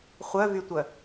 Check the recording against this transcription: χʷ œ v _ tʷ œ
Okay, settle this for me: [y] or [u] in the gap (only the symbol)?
y